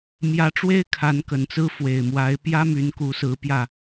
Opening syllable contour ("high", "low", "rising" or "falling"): rising